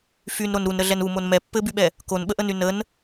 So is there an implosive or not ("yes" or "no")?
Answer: yes